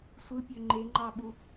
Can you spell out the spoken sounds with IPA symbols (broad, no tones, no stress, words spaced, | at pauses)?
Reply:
sʷɯpʲø ŋ͡ǃeŋ͡ǃɑɓu